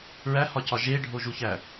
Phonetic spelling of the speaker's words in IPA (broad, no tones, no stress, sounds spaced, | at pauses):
ɹ æ h ɒ c ɒ ʒ e ɖʱ o ʒ u ç æ